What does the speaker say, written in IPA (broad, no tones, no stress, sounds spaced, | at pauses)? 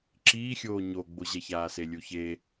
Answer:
ǁ iː xʲ oː ɲ o ɡ͡b o ʑ ɛ ç aː s e lʲ u ç e